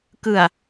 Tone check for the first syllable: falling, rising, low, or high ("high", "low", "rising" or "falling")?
low